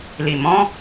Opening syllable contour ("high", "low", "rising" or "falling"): low